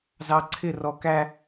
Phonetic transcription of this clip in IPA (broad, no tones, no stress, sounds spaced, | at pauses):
z ɑ ǀʰ ɪ r ɔ k æ